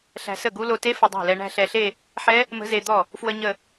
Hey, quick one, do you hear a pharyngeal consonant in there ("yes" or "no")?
yes